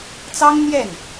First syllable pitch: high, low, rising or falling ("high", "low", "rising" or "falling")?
high